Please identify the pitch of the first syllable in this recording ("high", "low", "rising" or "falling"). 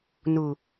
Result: low